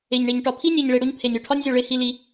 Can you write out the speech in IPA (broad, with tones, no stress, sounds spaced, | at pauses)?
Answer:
e˨ ɲ ɳ e˨ ɲ ʈ ɒ˨ pʰ i˦ nʲ e˨ ɲ ɭ e˨ ɽ o˦ ɲ pʰ e˨ nʲ o˨ ʈʰ ɒ˦ nʲ zʲ o˨ ɭ e˦ h i˦ l i˦